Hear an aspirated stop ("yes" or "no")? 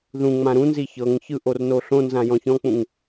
no